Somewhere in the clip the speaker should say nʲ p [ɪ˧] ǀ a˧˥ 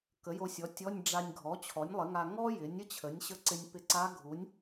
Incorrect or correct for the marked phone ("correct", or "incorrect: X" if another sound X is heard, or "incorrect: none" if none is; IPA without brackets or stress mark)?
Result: correct